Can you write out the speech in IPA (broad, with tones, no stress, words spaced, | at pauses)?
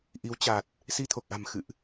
ʔi˨˦wt͡ɕa˨˩t̚ | si˧t̪ʰo˨˩k̚ʔa̤˨˩m xɨ̰˧˨ʔ